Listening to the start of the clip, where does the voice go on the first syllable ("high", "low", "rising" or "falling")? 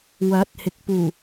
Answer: rising